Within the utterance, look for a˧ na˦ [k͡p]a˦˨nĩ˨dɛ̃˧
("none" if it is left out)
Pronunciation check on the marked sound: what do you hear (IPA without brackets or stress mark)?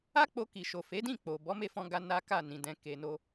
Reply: k